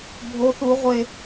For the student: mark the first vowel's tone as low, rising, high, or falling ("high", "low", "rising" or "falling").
high